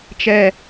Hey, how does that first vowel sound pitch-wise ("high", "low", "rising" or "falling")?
high